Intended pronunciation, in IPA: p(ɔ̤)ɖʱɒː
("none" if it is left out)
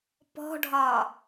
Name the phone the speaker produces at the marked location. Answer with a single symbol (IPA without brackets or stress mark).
ɔ̤